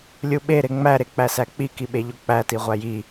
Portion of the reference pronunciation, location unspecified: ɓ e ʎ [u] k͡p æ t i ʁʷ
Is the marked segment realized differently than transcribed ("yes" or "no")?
yes